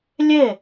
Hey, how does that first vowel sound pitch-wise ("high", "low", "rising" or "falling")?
falling